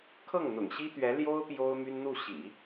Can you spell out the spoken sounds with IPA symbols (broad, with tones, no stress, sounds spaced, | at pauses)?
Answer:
kʰ ɤ˥˩ ŋ n̪ ʊ̰˨˩ ŋ ɕ i˥ t̪ ɥ ɛ˧˥ l j o˥ ʊ̯ p j o˥ ʊ̯ m y˥ n n̪ u˥˩ ɕ ḭ˨˩˦